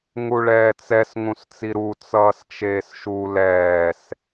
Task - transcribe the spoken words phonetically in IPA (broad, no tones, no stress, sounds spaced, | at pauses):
ŋ u ɭ ɛː t͡s ɛ s ŋ ũ s t͡s i ɾ u t͡s ʌː s t͡ʃ eː s ʃ u l ɛː s